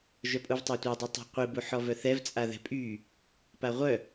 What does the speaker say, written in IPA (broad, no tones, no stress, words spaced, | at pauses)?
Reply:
ʒœpʼuvtˤatʷa dˤitˤa̤qʷi buħɔvœθɛv t͡sʼaðɛ̤pʼy | paʁʷœ